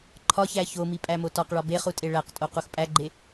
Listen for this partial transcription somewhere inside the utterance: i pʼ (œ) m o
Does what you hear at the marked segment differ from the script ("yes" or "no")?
yes